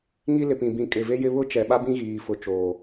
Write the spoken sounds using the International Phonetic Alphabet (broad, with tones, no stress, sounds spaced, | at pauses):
ŋ i˦ l ɪ˨ p ĩ˨ b ĩ˨ kʼ ɪ˨ v e˦ j ɪ˦ β ʊ˦ t͡ʃ ɛ˨ ɓ a˦ b ĩ˦ ɣ iː˨ f ʊ˨ t͡ʃ oː˨